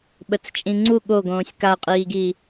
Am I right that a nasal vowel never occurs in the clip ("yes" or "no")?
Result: no